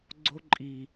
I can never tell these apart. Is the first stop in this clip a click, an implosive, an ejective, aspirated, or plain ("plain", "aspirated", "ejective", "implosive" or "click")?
click